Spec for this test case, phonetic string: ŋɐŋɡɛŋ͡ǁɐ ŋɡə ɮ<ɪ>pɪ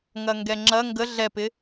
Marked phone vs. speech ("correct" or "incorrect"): incorrect